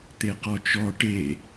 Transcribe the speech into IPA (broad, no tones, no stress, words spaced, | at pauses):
t̪eqɔt͡ʃɔ ʈe